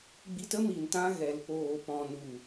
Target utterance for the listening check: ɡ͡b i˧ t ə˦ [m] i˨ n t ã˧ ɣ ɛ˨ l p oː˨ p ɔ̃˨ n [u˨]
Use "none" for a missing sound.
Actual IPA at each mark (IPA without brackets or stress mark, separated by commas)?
m, u˨